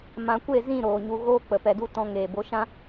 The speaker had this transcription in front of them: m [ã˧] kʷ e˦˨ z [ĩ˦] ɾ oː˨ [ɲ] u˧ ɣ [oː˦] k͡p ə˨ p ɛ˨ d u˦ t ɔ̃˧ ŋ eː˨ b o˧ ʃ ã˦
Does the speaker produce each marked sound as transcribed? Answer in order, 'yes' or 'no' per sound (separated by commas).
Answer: yes, no, yes, yes